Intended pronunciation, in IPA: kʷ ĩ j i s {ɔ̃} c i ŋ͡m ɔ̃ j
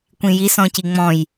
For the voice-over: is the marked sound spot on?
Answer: yes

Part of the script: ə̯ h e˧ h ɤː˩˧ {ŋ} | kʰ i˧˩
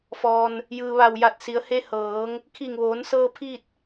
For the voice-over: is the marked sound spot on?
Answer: yes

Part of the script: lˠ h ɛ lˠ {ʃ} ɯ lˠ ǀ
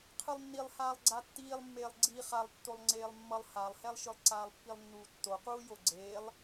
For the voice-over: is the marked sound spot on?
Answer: yes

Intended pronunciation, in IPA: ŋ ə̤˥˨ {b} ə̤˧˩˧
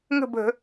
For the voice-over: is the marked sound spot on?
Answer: yes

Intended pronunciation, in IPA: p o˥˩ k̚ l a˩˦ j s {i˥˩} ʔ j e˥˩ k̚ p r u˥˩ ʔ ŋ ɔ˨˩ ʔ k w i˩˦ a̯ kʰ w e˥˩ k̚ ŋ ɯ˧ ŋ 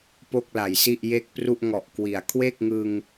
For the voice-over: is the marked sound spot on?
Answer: yes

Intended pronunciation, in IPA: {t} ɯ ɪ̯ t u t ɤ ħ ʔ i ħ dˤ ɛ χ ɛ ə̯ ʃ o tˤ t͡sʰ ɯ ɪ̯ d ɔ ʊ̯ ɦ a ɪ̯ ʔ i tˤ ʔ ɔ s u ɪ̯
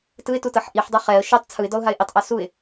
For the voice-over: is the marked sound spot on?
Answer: yes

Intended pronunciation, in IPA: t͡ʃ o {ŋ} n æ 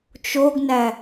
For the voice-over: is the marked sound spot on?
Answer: no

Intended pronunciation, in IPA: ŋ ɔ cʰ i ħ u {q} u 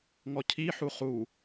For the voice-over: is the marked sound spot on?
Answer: no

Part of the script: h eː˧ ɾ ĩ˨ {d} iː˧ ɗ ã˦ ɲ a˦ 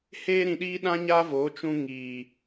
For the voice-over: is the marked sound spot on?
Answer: no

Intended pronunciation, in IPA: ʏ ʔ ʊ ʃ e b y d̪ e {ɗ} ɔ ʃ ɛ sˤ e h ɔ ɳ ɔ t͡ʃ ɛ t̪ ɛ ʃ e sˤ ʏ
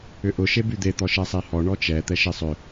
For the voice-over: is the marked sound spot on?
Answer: no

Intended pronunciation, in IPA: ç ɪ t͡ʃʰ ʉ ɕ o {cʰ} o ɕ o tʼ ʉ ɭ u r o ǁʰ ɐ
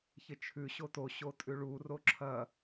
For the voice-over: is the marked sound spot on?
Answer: no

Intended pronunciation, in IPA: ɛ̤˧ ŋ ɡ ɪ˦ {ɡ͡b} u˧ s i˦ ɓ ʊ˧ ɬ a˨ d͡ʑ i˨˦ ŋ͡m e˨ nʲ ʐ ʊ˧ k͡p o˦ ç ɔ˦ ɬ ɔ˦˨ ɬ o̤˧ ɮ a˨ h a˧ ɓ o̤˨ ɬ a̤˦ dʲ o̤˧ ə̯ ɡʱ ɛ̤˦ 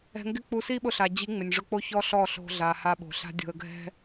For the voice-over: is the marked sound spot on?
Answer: no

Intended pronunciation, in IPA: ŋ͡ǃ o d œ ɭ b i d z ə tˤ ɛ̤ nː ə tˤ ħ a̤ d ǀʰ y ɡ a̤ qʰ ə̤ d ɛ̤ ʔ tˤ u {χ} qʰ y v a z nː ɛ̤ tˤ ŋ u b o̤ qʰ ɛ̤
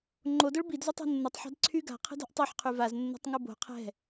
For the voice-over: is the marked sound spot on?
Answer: no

